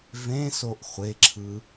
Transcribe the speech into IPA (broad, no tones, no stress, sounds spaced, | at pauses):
v ẽ s o ʔ χʷ e ǁʰ ɯ